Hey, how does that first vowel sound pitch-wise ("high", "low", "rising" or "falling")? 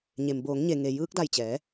low